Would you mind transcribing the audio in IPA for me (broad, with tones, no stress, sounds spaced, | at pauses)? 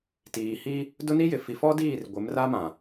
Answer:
t iː˨ h i˦ | d ʊ˦ n i˦ j ɪ˨ f i˨ f ɔ˦ d iː˦˨ r ɡʷ ɪ˨˦ m r a˦ m ã˨